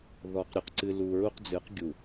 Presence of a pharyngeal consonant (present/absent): absent